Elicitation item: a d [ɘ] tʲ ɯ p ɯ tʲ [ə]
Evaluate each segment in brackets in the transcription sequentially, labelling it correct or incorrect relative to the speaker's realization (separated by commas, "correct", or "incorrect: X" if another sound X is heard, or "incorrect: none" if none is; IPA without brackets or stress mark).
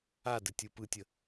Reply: correct, correct